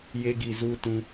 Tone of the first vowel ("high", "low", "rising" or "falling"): high